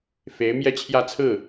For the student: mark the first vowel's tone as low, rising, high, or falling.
rising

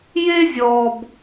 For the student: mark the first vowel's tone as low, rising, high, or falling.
high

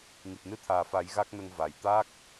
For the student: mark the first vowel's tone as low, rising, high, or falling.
low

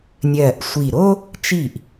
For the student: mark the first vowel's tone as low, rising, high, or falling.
low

